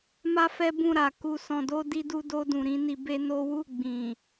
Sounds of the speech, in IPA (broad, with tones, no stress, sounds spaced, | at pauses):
m a˦ f ɛ˦ b ũ˦˨ ɾ a˨ k u˨ s ɔ̃˨ d o˧ d i˧ d u˧ d o˧ d ũ˨ ɾ ĩ˨˦ n i˧ b e˦ n o˦ w u˦˨ ɡ͡b ĩ˨